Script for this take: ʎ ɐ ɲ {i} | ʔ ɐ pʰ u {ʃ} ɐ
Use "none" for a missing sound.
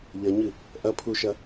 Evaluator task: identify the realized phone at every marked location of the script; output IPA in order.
ɨ, ʃ

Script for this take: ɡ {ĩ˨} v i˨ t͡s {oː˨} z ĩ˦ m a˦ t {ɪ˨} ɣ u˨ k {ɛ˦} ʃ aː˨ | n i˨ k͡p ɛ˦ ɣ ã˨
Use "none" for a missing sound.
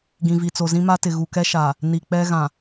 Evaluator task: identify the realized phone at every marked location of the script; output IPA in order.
ĩ˨, o˨, ɪ˨, ɛ˦

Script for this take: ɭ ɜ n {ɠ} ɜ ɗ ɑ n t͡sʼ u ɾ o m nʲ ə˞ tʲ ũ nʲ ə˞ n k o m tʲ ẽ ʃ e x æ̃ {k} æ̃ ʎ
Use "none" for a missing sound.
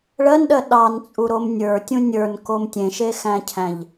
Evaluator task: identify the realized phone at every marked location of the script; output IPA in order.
ɗ, cʰ

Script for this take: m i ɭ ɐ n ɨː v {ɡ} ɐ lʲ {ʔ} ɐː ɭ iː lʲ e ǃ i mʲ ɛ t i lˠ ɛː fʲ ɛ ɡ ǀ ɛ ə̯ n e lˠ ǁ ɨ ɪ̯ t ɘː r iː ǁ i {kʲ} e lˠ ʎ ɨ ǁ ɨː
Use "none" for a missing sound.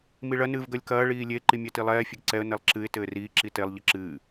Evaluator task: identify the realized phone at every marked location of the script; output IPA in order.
ɡ, k, t

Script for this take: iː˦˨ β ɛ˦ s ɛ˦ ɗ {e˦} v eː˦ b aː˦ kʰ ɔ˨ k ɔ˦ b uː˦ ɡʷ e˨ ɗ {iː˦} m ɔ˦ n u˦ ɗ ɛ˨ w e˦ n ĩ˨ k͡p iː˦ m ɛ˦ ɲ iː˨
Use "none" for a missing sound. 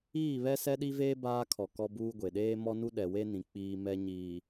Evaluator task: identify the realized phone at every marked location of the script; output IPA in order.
i˦, eː˦

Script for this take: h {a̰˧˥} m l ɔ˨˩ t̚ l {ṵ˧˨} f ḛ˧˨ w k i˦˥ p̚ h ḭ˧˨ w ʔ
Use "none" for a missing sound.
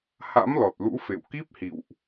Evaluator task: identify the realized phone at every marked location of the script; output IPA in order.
a̰˧˥, ṵ˧˥

